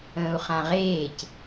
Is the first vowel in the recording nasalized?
yes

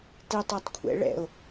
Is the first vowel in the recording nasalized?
no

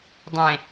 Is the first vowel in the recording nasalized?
yes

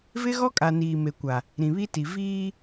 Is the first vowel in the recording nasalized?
no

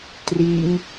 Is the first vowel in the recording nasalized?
no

